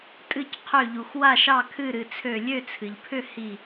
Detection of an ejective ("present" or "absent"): present